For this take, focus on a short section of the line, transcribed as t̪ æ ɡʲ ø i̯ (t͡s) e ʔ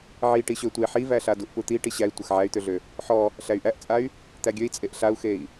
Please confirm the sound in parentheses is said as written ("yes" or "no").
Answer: no